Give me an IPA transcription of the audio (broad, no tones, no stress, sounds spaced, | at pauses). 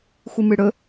xʷ ɨ m ɨ ɽ ɵ